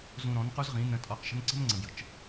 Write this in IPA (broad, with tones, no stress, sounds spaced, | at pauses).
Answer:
z ũ˧ ɾ ɔ̃˨˦ n q u˦ z ʁ ĩ˨˦ n ə̃˧ tʼ ɔ˧ q ʃ ə̤˦ n ǀ ə̤˦ m ŋ͡ǀ ə̃˨ b j ə̤˨ t͡ʃ